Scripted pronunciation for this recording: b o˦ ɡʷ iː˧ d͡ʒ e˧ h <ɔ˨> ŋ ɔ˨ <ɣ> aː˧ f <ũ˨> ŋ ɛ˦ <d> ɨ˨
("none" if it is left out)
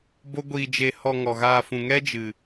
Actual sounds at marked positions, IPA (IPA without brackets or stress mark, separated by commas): ɔ˧, ɣ, ũ˨, d͡ʒ